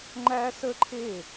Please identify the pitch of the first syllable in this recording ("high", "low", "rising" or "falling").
high